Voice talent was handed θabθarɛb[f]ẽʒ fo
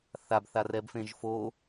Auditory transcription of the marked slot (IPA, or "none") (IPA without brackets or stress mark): f